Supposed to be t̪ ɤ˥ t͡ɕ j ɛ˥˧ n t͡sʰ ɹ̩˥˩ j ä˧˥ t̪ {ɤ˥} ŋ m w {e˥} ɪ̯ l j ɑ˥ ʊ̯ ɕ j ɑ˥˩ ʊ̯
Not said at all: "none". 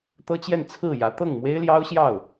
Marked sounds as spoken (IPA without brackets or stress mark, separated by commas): ɤ˥˩, e˥